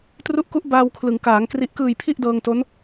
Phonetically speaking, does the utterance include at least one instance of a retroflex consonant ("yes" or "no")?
no